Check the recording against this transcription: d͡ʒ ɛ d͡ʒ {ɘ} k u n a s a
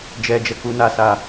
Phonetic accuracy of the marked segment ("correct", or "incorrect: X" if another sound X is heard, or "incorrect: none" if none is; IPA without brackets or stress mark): incorrect: ɛ